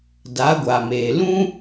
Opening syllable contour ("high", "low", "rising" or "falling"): rising